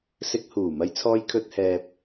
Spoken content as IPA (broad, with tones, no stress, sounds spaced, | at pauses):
s ɪ˧ k̚ h uː˨˩ m ɐ˧ j t͡sʰ ɔː˧ j kʰ ɵ˨ t̚ h ɛː˨ p̚